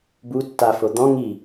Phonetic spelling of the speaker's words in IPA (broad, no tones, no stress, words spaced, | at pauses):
bu tːafo d̪ɔ̃ ŋi